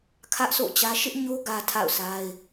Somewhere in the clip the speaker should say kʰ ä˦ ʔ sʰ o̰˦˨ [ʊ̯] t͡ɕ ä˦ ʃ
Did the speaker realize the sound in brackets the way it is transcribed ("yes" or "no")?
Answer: no